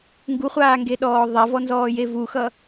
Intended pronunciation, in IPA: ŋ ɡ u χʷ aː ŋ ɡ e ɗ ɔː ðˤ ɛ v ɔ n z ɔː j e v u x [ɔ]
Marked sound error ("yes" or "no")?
yes